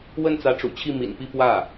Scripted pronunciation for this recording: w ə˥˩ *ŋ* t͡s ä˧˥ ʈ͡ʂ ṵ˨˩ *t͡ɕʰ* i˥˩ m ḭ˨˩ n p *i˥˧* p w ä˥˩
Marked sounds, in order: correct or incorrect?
incorrect, correct, correct

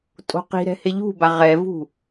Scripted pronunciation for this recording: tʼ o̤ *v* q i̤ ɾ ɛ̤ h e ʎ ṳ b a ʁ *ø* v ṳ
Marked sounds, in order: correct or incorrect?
incorrect, incorrect

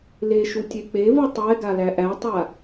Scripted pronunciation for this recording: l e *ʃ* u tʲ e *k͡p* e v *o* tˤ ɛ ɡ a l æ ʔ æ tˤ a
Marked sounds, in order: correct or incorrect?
correct, correct, incorrect

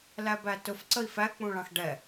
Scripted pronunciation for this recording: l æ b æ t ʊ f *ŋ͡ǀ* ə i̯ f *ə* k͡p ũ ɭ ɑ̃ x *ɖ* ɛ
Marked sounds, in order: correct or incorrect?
incorrect, incorrect, correct

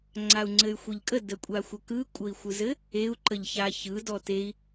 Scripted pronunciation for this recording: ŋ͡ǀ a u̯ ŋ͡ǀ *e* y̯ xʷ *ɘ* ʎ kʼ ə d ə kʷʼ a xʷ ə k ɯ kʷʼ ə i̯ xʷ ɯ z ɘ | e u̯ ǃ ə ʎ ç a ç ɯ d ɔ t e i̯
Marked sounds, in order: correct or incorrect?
incorrect, incorrect

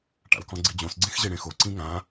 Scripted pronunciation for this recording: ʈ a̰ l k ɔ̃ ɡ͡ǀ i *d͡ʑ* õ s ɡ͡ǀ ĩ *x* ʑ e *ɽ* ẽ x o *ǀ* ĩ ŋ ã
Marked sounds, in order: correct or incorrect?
correct, correct, correct, correct

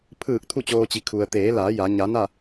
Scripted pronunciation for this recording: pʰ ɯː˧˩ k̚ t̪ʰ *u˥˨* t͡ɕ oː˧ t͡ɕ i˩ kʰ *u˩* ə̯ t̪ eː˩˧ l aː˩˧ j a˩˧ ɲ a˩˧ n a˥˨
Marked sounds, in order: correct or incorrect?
correct, correct

